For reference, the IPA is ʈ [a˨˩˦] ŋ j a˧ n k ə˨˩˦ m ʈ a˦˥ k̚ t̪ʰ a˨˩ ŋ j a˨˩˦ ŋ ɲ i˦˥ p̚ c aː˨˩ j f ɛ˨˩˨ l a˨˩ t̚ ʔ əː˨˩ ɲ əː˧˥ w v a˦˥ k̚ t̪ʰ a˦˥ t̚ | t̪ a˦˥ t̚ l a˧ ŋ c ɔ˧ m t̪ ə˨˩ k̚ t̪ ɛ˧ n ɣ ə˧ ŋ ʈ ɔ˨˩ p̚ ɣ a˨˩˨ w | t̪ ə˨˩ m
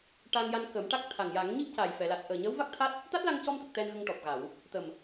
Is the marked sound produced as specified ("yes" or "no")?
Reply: no